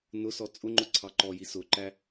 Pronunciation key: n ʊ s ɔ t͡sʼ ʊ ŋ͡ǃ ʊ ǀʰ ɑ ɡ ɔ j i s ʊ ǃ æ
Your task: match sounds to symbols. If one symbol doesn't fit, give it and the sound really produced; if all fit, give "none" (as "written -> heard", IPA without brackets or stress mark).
ɡ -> ǃ